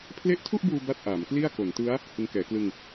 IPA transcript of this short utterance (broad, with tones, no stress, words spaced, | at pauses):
pʰle˦˥ʔtʰu˥˩ʔbuː˧ ba˥˩t̚ʔaː˩˦mkli˥˩a̯ ko˩˦ntɯ˦˥a̯ | hɯ˧ŋkɛː˩˦klɯ˧ŋ